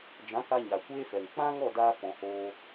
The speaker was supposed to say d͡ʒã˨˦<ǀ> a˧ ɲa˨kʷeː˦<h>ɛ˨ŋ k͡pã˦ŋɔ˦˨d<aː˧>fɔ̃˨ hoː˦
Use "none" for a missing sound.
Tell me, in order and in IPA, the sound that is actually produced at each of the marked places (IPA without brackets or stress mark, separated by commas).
k, f, aː˧